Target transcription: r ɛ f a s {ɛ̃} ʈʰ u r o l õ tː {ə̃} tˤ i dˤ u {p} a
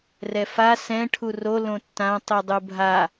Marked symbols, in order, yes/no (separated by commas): yes, no, no